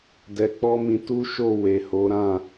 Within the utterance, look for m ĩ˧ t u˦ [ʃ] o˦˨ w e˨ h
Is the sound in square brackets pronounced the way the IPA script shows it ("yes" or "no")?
yes